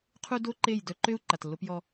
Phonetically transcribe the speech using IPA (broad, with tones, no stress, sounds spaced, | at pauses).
qʰ u˦ d o˦ ǃ e˦˨ j d œ˦ ǃ ø˦ u̯ ǃ a˨ t lː o˦ p j ɔ˦